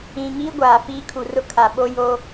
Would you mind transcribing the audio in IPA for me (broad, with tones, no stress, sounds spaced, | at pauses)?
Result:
ĩ˨ ŋ iː˦ ɡʷ aː˨ f iː˦ kʰ u˨ r ʊ˦ kʰ a˨ ɓ o˦ j o˦